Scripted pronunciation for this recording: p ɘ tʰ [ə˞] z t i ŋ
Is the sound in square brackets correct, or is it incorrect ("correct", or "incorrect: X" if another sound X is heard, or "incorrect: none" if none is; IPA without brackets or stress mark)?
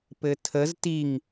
incorrect: ə